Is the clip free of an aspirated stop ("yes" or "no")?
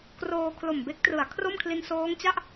no